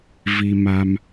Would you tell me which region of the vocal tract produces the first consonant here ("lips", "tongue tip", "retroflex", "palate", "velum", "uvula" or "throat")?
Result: lips